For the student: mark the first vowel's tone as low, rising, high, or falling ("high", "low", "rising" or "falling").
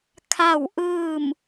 falling